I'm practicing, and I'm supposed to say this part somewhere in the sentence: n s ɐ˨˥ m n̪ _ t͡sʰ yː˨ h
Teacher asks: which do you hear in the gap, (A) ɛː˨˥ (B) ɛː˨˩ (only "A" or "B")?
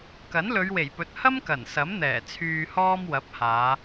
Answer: B